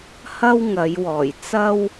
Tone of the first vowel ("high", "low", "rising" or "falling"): high